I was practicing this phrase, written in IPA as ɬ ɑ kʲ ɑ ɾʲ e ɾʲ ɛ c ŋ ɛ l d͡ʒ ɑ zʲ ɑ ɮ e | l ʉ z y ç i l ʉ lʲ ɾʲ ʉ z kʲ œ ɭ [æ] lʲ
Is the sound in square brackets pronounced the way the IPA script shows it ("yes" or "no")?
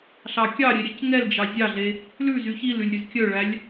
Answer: yes